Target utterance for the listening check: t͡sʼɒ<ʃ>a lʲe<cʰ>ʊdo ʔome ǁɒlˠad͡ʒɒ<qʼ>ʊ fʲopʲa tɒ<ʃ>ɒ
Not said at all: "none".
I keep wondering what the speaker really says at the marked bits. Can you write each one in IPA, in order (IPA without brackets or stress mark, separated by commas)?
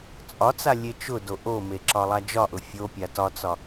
t͡s, t͡ʃ, ʔ, t͡s